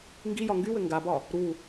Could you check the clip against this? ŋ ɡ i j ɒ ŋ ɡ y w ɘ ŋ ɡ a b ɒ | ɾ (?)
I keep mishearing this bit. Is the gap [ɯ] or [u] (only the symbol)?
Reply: u